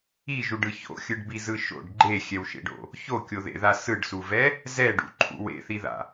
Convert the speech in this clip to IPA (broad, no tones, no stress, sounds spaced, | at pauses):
i ʒ u ɖ ɯ ç o̰ xʲ ɯ ɖ b i z ɯ ʃ o̰ ɖ ɡ͡ǃ e xʲ ɛ w ʃ ḛ ɖ o̰ | ç o kʲ o ð ḛ ð a s ɯ ɖ s u v ɛ | z ɛ ɖ ṵ ǃʰ ṵ w ḛ θ i ð a̰